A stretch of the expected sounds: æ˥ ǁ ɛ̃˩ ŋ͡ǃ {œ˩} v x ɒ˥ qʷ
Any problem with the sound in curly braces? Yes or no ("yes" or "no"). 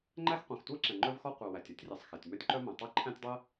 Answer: yes